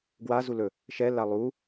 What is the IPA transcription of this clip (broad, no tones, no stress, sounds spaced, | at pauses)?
ɡ w a z u l ɵ | ʃ ɛ l a lˠ u